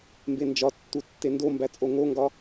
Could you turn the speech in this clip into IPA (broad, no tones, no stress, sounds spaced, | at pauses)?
m b e n d͡ʒ ɒ tː u tː e n d o m b æ t͡sʼ o ŋ o ŋ ɡ ɒ